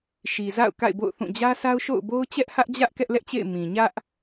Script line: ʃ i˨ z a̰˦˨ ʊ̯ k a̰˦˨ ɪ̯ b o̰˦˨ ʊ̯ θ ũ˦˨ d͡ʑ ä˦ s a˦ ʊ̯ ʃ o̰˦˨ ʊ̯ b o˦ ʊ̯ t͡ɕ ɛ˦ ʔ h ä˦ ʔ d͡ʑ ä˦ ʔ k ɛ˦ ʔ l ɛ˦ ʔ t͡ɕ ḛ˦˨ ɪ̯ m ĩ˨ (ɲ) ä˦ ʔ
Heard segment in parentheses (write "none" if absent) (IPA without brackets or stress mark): ɲ